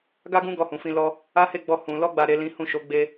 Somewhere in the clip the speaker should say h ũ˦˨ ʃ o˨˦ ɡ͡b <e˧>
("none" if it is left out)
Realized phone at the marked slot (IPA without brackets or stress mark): e˧